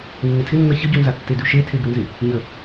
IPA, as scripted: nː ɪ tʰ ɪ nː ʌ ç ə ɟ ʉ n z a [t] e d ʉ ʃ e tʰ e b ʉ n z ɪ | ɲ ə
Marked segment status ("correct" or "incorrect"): incorrect